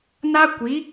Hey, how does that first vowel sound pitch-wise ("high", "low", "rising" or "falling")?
high